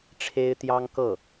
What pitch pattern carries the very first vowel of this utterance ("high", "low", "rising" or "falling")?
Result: high